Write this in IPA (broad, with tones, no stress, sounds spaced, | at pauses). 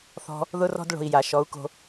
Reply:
θ ɔ̤˧ | ð ʊ˦ r ɔ̤˦ d ɭ o̤˧ i̯ j a˨ ʃ ɔ˨˦ u̯ k o̤˧